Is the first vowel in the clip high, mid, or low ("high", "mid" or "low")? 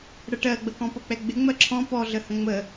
mid